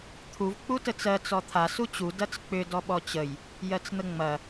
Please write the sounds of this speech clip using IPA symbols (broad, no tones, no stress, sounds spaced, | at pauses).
t̪ʰ u v k͡p u t ə t͡s ɜ t͡s ɔ t̪ʰ a s u t͡ɕ u d ɐ t͡s k͡p ʏ d ɔ ɓ ɔ t͡ɕ ə j | j ɜ t͡s n̪ ə ŋ͡m ɐ